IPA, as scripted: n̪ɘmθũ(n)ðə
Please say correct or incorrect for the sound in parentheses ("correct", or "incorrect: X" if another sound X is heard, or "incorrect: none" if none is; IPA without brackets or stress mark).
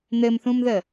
incorrect: m